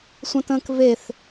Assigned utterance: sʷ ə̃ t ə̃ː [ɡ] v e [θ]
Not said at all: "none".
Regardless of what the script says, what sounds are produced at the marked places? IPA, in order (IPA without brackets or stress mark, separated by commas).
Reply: k, θ